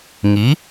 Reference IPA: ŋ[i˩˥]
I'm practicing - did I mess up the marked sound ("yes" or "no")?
no